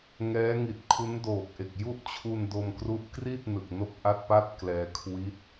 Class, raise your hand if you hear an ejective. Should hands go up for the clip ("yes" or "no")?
no